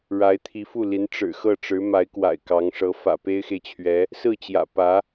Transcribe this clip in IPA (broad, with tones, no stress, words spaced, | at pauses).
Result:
ɻa˧˥ɪ̯t̪ʰi˧˥fu˥˩li˧˥n ʈ͡ʂɻ̩˨˩xɤ˥˩ʈ͡ʂɻ̩˧˥ ma˧˥ɪ̯kwa̰˨˩ɪ̯ kɑ˧˥ŋʂɤ˧˥ fä̰˨˩pe˥ɪ̯xe˨ɪ̯t͡ɕʰɥɛ˧˥ | sɹ̩˥˩t͡ɕjä̰˨˩ pä˧˥